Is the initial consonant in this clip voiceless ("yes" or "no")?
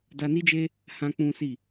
no